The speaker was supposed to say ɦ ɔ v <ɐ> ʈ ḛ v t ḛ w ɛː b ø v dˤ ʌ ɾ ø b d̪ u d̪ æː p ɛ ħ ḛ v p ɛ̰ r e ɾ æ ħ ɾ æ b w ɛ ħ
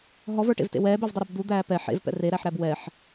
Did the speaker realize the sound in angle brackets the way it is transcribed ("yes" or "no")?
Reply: no